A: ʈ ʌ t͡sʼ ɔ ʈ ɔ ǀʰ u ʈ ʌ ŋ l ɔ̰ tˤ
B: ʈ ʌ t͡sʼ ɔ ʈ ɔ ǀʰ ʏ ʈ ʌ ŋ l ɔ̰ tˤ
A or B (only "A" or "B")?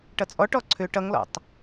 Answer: B